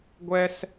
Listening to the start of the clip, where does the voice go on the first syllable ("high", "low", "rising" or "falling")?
high